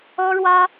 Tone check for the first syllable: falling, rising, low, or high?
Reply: high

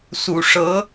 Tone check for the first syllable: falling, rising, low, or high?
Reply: low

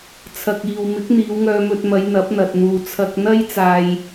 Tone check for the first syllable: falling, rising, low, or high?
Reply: low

